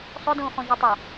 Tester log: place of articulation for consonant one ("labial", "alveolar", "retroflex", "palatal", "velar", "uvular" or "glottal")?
alveolar